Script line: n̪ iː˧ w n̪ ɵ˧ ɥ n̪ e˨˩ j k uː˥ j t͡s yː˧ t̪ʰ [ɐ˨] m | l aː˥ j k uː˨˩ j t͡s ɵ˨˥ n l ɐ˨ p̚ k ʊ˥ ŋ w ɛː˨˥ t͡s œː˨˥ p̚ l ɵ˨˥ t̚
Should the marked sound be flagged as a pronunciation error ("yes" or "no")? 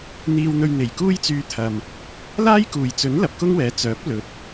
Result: no